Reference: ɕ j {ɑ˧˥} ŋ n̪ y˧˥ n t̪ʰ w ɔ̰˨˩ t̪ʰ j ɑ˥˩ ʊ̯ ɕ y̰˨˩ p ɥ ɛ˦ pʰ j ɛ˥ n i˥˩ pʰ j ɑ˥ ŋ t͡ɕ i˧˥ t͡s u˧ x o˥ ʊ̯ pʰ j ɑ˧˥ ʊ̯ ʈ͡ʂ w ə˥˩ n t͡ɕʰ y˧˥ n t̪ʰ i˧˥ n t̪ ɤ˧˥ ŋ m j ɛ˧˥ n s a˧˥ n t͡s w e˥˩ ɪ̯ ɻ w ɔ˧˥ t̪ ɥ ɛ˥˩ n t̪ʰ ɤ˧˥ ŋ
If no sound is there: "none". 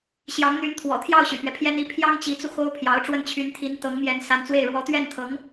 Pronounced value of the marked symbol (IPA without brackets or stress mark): ɑ˧˥